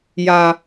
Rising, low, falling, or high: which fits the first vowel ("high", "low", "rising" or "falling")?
low